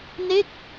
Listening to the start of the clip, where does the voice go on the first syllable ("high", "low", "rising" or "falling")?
falling